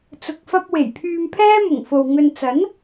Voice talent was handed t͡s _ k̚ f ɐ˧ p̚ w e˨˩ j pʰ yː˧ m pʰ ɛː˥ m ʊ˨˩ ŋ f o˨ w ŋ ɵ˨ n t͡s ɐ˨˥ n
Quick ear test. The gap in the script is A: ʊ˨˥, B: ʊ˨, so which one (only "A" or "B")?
B